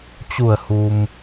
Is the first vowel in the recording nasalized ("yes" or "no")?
no